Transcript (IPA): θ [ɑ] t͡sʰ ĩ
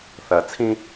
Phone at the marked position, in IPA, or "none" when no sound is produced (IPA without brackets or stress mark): ɐ